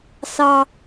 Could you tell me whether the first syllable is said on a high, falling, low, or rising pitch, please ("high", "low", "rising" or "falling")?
high